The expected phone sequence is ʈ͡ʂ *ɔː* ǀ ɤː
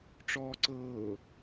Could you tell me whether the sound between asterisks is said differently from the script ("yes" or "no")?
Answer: no